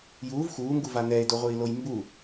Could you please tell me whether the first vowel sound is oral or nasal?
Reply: oral